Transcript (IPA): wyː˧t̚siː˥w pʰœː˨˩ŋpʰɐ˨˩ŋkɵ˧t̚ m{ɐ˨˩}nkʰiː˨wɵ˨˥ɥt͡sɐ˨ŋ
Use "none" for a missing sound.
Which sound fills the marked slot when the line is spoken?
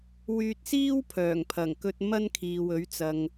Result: ɐ˥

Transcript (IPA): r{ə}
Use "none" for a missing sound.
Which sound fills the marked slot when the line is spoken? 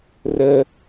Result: ə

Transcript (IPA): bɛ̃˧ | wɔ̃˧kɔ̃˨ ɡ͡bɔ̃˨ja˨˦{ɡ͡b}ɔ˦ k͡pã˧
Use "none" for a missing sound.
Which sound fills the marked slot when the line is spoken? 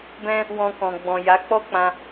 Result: k͡p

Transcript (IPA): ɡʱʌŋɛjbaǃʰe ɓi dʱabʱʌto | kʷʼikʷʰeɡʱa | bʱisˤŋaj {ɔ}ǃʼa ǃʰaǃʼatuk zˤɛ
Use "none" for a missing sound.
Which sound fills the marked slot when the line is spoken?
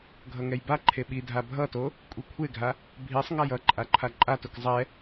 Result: ʌ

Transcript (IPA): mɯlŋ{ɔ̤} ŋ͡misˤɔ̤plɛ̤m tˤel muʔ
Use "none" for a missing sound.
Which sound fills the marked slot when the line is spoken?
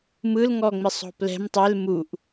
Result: ɔ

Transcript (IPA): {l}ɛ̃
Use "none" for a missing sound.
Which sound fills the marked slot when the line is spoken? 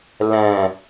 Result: l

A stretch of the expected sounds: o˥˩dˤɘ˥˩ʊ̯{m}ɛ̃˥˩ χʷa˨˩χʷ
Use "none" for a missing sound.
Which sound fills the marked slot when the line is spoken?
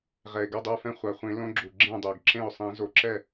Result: f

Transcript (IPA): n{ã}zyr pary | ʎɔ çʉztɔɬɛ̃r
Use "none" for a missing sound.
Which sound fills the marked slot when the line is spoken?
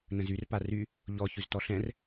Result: ə̃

